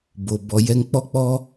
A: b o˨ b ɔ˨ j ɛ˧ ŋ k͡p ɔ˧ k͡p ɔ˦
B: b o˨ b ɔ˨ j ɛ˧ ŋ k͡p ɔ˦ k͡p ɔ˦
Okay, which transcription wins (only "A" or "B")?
B